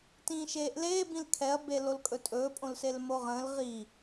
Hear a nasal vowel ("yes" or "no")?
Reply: yes